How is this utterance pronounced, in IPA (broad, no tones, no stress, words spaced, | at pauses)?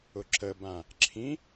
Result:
ʊǁəbã | ǁʰĩ